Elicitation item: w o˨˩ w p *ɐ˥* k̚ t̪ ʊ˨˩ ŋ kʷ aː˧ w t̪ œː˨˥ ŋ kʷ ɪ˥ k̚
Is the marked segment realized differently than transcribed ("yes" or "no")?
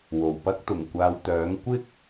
no